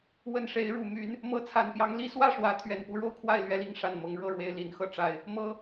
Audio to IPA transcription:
wə˨˩n ʂe˨˦ɪ̯ɻu˨˩ my˨˦n | mɤ˨˦t͡sʰa˨˩npjɑ˨˦ŋ li˦ swä˥˨ʂwä˨˦ t̪ʰɥɛ˨˩npu˥˨ɻo˥˨ʊ̯kʰwa˥˨ɪ̯ lɥɛ˨˦li˨˦ŋʂa˨˩n mɤ˨˦ŋɻɤ˥˨ɻwe˨˦ɪ̯ li˨˦n xɤ˨˦ ʈ͡ʂa˨˩ɪ̯ | mɤ˨˦

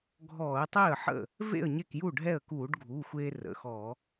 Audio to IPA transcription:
ɡʱɔː˧˩˧ə̯tˤe˥˩ə̯ħə̰˥˩ | vḛ˥˩ə̯ ɲe˥˩kju˥˩ɖʱɛ˥˩ə̯ kuː˧˩˧ɖɡʱuː˩˧˩xʷeː˧ rə̰˩˧˩xɔ˧˩˧

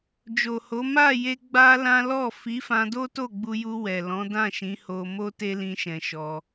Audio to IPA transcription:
d͡ʒo˨ho˨˦ ma˦˨je˧ ɡ͡ba˦lã˦ lɔ˦˨ fi˨˦fã˧do˦to˦˨ ɡ͡bu˧ju˧ wɛ˨lɔ̃˨˦dã˦˨ʃĩ˨˦ ho˧mo˦te˦ lĩ˦ʃɛ̃˧ʃɔ˧

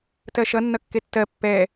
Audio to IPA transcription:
tɜʃʌ nːʌkːetːɜ pːɛ

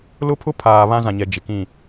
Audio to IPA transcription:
lʊ˦pʰʊ˦pʰaː˨ βã˦zã˨ɲɛ˨ d͡ʒɪ˨kĩ˦˨

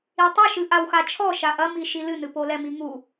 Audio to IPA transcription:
itˤɐʃɨ ʔawxat͡ʃʰɔ ʃaʔɐmi ʃilɨnɨ polɛmiŋu

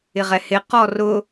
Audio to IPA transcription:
ɪʁɛhɪ qɔrʊ

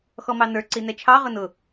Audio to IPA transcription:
xɔmɑnə˞ ǀinɛt͡ʃʰɑ ʁʊnʊ

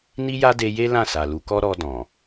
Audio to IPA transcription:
ni˦ja˦de˧je˦ lã˦˨sa˨lu˨˦kɔ˦ ɾɔ˧dɔ̃˨

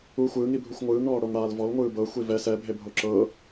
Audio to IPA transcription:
u xʷɯːŋibʱuxʷ ŋʷɯːŋɳɔːɽoŋɽaːl vɔlŋʷɯː bɤxʷi vɛ sɛbʱebʱo ǁɤ

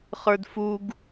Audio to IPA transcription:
χə˞dfuɡ

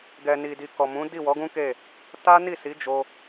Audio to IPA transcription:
ɡɛ˨ni˨di˨ kɔ˨mũ˨˦ di˦˨wɔ˨˦ɡũ˦ke˦˨ | ta˦ni˦˨si˨˦ d͡ʒo˧

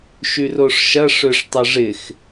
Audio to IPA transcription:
ʃyroʂʃɐ ʂøʂtˤɐʐɪx

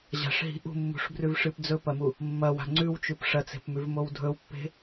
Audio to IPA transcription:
ʑa̤ʂɦi̤ ʔṳmːṳʂbrʉvʂɨp d͡zɵpɐmu | mːɐwa̤ ŋ͡ǀʉwt͡ʃʉp ʂɐt͡se̤pmʉvmow dʱɵwpːe̤

